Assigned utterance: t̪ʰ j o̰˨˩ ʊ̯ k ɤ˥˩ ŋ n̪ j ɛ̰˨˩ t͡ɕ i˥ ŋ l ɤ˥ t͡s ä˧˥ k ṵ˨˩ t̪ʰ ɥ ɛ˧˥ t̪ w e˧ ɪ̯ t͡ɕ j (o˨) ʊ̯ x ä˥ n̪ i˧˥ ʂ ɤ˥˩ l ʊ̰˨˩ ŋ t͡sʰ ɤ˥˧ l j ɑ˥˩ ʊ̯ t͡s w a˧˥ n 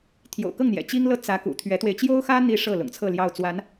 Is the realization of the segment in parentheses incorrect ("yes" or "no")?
yes